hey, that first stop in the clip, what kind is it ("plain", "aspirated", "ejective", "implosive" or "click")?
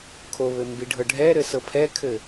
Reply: aspirated